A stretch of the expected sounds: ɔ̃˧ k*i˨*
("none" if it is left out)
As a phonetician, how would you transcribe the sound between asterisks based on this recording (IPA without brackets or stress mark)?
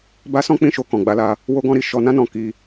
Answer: i˧